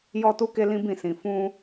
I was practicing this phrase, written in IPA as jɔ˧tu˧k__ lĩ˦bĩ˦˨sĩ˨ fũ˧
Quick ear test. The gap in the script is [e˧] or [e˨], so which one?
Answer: e˧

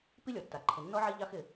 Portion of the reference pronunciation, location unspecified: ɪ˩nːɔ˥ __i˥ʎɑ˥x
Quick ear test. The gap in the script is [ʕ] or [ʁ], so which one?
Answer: ʕ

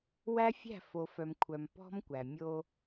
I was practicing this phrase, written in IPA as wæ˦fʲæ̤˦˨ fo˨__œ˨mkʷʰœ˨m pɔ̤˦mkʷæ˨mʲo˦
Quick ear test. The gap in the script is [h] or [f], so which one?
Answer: f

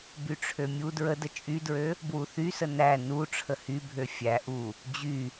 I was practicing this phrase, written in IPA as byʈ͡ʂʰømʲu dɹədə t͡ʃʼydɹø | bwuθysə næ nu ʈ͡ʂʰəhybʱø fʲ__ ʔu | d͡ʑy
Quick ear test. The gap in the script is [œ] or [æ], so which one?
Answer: æ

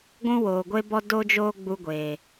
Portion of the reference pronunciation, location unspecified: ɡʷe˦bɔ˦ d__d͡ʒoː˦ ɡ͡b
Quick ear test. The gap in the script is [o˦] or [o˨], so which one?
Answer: o˦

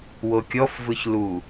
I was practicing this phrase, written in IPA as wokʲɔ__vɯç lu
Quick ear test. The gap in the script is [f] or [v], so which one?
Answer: f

